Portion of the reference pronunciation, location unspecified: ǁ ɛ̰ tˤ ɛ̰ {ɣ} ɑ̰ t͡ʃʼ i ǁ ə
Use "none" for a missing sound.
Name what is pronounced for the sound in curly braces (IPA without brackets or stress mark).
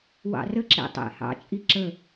h